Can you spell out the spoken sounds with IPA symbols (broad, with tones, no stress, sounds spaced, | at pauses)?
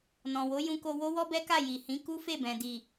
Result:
n ɔ̃˨ w o˨˦ j ũ˧ k o˧ w o˦ w ɔ˦ b ɛ˦ k a˦˨ j i˨ h ĩ˨˦ k u˦ f e˦˨ b ɛ̃˨ d i˨